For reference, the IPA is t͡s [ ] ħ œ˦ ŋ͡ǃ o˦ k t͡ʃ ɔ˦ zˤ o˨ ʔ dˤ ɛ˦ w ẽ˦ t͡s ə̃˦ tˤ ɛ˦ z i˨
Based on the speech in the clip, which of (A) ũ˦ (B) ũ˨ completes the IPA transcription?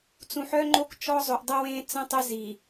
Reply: B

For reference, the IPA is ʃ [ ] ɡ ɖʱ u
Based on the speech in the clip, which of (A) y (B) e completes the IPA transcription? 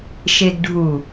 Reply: B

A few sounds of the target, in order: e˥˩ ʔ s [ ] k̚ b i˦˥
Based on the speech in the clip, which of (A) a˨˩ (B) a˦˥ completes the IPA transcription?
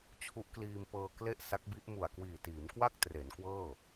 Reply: B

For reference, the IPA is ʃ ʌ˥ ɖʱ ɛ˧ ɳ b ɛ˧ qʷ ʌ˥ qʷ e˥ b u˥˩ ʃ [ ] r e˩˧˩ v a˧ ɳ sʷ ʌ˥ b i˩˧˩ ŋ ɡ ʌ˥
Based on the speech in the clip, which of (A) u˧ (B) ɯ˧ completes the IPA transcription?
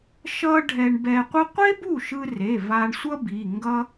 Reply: B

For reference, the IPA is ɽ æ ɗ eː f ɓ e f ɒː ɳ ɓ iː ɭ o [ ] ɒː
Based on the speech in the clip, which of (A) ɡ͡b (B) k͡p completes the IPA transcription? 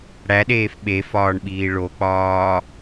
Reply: B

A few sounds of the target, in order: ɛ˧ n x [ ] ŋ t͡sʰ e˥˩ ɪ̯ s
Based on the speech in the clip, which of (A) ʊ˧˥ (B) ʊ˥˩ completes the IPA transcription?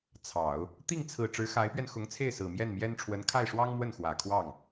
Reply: A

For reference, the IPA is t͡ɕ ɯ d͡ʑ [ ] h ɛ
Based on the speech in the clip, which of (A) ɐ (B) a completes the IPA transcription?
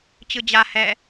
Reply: B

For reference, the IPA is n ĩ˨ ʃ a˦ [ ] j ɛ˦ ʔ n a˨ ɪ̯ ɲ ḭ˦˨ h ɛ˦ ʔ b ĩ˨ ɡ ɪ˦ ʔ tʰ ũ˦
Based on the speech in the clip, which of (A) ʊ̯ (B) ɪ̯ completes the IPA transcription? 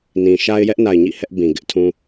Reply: B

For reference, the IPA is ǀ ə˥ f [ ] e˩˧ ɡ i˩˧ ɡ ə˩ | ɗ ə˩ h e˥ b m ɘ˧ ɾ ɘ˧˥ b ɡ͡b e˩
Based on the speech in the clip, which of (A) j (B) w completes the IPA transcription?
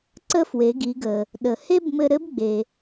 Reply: B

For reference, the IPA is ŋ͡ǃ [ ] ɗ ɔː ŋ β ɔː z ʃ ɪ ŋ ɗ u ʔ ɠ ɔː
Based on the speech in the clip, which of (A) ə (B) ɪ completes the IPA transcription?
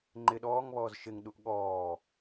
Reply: B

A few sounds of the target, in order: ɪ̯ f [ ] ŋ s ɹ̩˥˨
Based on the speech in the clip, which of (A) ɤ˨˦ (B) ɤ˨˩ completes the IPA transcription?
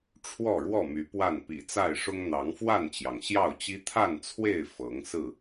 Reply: A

